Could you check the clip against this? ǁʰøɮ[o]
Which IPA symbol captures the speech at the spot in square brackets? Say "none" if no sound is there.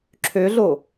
o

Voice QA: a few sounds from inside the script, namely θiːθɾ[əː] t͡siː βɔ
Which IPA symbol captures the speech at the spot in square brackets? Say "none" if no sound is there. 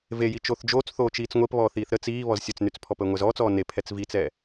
ə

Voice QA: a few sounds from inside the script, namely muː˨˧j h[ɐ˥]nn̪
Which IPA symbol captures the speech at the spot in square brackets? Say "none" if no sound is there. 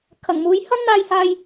ɐ˥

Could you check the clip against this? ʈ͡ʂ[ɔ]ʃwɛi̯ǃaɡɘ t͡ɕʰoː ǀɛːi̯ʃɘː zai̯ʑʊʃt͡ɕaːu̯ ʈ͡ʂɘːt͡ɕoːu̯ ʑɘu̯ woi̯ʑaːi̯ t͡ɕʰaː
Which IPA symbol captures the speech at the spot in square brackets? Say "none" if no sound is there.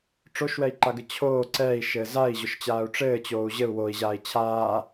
o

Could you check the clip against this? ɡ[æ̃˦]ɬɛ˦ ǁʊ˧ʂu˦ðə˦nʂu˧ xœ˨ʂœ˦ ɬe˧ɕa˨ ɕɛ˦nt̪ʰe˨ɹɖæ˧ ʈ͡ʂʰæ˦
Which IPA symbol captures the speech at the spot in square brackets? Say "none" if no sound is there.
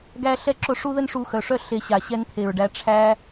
æ˦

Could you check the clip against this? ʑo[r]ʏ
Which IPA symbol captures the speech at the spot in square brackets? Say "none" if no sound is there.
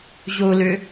l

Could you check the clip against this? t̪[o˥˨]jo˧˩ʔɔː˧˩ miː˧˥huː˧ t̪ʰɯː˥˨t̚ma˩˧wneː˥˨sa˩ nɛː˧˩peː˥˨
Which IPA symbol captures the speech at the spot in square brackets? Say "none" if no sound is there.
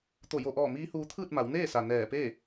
o˧˩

